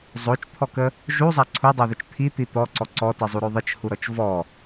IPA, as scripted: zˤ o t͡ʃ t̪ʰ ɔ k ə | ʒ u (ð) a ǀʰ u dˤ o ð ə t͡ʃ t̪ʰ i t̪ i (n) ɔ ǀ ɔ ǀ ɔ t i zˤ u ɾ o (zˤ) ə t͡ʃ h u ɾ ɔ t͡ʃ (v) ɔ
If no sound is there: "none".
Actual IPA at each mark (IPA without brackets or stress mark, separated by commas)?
zˤ, t̪, ðˤ, v